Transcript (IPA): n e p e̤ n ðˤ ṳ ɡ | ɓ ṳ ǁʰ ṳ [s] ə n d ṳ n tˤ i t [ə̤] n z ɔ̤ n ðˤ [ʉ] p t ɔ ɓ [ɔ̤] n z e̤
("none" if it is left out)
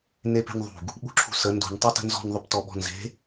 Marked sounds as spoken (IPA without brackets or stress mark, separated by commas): s, ə̤, ʉ, ɔ̤